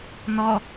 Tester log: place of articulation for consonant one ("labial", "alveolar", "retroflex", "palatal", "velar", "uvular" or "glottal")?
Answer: alveolar